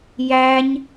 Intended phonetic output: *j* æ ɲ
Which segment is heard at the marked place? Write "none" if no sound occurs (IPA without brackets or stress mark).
j